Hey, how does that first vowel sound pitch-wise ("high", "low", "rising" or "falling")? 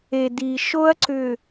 low